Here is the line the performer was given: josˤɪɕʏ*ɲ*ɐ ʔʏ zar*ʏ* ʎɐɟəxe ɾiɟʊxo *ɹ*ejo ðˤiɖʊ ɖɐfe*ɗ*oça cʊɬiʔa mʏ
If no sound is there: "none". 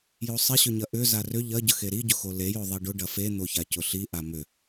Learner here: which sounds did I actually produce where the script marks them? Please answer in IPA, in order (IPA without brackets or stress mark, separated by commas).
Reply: ɲ, ʏ, l, n̪